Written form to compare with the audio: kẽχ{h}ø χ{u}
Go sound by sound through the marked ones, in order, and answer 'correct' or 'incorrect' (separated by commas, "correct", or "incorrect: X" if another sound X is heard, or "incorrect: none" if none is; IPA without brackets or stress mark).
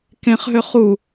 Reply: incorrect: ɦ, correct